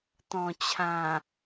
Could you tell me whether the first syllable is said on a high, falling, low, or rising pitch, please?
low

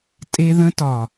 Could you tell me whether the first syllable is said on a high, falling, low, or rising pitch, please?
high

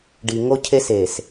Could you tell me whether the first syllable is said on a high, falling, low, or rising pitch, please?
low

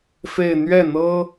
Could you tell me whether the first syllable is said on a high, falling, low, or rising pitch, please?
falling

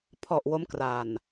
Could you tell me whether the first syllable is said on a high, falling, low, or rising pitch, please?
low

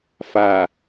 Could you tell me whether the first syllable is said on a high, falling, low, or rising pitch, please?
low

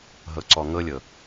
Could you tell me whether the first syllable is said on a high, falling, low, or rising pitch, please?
low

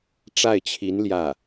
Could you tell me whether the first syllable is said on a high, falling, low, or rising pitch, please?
falling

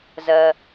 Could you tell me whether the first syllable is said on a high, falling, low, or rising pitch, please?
low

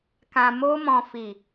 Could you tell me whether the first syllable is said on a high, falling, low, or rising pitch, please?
low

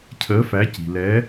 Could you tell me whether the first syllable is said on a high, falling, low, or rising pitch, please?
rising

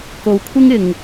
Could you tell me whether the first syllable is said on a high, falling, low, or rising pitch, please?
low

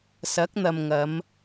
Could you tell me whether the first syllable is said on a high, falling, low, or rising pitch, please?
rising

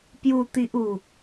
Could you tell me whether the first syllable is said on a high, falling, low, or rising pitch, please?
low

